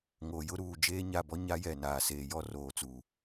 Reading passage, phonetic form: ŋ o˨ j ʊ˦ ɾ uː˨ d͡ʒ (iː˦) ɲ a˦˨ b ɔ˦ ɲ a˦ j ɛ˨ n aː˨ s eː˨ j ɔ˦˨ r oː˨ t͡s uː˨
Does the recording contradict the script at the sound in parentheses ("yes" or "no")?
yes